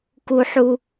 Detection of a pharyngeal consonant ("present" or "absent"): present